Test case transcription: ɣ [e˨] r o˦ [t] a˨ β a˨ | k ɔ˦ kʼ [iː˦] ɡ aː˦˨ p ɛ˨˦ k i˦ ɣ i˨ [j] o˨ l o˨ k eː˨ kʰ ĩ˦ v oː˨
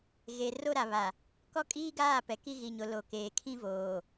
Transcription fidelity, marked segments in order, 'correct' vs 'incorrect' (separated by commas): correct, incorrect, correct, incorrect